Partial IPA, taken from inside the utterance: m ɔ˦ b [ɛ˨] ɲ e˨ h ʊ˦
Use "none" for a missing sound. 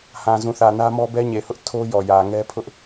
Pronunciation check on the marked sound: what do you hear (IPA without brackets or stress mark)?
ɛ˦